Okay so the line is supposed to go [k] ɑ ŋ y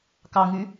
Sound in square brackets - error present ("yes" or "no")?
no